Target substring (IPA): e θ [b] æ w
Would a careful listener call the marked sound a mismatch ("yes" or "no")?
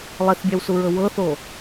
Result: yes